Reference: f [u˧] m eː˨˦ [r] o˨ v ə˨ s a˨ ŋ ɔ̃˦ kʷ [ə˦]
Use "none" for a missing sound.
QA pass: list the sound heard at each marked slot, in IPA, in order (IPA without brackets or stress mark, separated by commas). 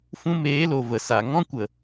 ũ˧, l, ə˨